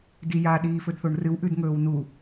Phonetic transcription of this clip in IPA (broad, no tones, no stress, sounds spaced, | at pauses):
d i j a ɗ iː f ɵ d θ o ɳ r ɨ w ʔ ʉ d ŋ ɵː w n u